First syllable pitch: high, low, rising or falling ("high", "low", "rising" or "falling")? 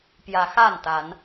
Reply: rising